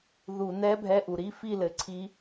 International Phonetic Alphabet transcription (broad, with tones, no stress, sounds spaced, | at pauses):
ð u˧˩˧ n ɛ˧˥ bʱ ɛ˧˥˧ ʔ u˩ ɾ i˧˥˧ f i˥˨ l ɘ˩˧ ǀʰ i˧˥